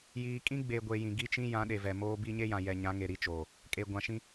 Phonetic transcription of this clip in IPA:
j iː˨ kʼ ĩ˦ ɡ͡b e˨ ɡʷ e˨ j ĩ˨ ɡ i˦ t͡ʃ ĩ˦ j ã˨˦ ɗ e˨ v ɛ˨ m oː˦ b i˦ ɲ e˦ j ã˨ j ɛ˨ ɲ ã˨˦ ŋ e˨ ɾ i˦ t͡ʃ oː˨ | kʼ e˨ ɡʷ ã˨ ʃ ĩ˦

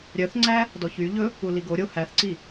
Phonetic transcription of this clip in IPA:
ɾʲ œ θ ŋ͡ǀ æ | d ɔ ç y ʎ ɵ | u l i ɡ o ɾʲ o h æ θ ǀ i

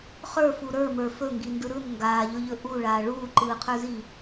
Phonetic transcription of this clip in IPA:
χ ə˞ f u ɾ ə˞ m ə˞ f ɵ ŋ ɡ i n d ɯ ɾ ɯ n ŋ ɡ aː ʎ ɵ ʎ ɵ ʔ u ɭ aː ɭ uː ǃ ɯː qʰ ə˞ z i

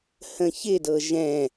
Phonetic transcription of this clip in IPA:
h ə̃ ç ɪ d ɤ ʒ ɛ̃

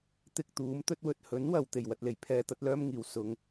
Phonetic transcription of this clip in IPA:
t̪ ɪ˧ k̚ t̪ uː˨˥ m t̪ ɵ˧ t̚ w ɵ˨ t̚ h ɵ˨˥ n w ɐ˨ w t̪ e˨˩ j w ɐ˧ t̚ l e˨˩ j pʰ ɛː˨˧ t̪ ɐ˨˥ t̚ l œː˥ m ŋ iː˨˩ w s ʊ˨˧ ŋ

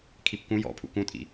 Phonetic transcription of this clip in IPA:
kʰ i p k ũ j ɔ̰ pʰ ṵ k ũ tʼ ḭ

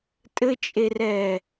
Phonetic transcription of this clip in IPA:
tʼ ɘ t͡ʃʼ e r ɛː

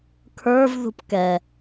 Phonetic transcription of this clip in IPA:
kʰ ə˞ v ð ṳ p k ɛ

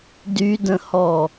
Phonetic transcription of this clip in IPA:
d y d ə̃ h ɔ

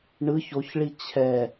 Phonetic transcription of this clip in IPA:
ɳ ɯ ç o ç ɭ i t͡ɕʰ ɛ

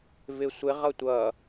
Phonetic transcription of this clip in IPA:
v ɪ sʷ ɪ ʁ ʌ tʷ ʌ

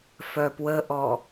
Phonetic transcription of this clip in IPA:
f œ p w ə ʔ ɔ

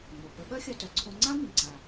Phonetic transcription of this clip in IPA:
ŋ͡m o˩ p ə˧ ɓ œ˥ xʲ œ˧ t œ˩ ǀʰ õ˧ ŋ͡ǀ ã˥ m ĩ˩ ǀ a˩

